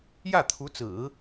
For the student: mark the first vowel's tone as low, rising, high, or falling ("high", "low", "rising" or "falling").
falling